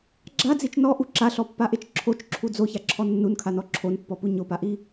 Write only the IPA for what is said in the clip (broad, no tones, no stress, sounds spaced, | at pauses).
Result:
ɡ͡ǁ a d͡z i t͡ʃ n ɔ ʔ u ǁ a ɬ ɔ pː a ʔ e t͡ʃ ǁʰ o t͡ʃ ǁʰ u d͡z o ç a ǁʰ ɔ nː u n kʰ a n ɔ ǁʰ o n pː ɔ p u ɲ o p a ʔ i